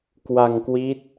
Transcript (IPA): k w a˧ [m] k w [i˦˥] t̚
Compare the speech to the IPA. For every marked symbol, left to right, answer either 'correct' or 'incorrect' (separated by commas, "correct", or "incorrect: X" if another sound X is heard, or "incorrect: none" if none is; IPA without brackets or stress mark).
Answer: incorrect: ŋ, correct